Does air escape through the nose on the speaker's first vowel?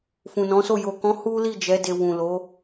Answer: yes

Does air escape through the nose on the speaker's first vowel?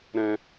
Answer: yes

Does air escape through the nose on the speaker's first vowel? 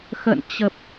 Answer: no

